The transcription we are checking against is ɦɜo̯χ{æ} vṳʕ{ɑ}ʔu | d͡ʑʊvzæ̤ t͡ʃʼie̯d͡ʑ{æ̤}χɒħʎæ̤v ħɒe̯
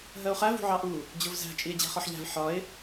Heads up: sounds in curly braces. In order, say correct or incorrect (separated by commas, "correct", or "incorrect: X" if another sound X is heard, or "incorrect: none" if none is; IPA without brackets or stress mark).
correct, correct, correct